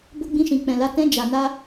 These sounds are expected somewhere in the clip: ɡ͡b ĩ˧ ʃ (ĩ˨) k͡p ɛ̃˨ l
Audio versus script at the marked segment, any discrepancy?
no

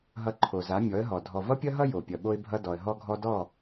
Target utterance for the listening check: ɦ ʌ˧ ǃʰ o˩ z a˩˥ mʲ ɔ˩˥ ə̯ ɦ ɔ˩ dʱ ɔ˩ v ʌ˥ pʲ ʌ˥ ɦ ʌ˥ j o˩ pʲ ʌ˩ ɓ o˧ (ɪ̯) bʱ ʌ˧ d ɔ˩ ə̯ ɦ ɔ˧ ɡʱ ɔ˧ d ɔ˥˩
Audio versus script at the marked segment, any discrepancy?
no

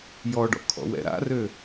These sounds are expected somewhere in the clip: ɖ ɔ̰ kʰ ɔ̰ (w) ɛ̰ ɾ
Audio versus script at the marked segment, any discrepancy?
no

